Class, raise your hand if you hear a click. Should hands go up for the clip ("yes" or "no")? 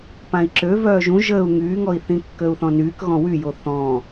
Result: yes